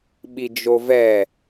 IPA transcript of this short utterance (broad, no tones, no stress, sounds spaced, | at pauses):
ɓ i d͡ʒ o v ɛ